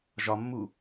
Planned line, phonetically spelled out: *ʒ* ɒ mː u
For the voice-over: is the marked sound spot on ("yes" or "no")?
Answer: yes